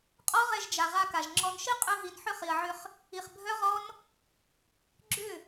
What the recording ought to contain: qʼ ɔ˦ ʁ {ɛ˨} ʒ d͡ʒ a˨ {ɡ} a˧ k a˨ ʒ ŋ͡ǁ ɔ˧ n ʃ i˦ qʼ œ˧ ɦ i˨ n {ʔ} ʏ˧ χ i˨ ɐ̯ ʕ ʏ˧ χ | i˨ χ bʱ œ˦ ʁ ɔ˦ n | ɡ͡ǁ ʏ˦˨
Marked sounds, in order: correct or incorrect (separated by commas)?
incorrect, incorrect, incorrect